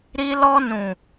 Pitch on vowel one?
high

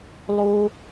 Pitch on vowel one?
high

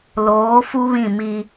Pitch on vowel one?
rising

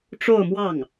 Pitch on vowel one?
falling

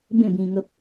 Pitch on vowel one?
falling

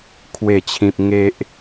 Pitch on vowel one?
falling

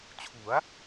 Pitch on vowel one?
rising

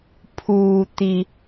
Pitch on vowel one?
low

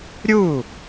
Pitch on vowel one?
falling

